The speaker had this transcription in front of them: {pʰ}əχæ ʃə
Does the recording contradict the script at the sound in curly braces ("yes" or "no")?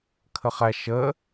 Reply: yes